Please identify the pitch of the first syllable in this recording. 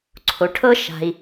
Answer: low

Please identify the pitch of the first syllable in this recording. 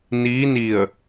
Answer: rising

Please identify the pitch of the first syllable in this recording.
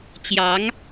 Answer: rising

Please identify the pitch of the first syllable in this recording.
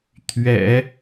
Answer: low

